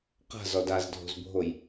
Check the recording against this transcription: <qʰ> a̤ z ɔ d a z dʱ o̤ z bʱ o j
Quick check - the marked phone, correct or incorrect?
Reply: incorrect